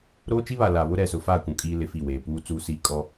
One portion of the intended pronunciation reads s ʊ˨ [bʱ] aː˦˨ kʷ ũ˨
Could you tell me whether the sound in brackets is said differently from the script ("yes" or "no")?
yes